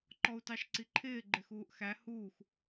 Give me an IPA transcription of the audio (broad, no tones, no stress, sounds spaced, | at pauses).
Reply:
ǃ ɔ u̯ t ɑ ʃ ǀ i ǃʰ ɪː ɡ͡ǃ ɪ x uː ʔ x æ h uː x